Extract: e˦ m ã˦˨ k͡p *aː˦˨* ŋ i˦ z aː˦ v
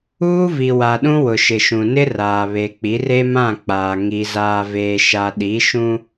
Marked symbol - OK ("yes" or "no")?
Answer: no